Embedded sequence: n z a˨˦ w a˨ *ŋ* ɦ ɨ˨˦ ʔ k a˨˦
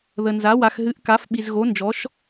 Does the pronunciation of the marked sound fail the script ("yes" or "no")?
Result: yes